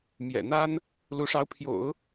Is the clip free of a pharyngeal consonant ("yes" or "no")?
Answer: yes